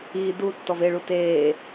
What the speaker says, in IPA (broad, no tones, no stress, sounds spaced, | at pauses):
i d u tː ɔ v e ɭ u t eː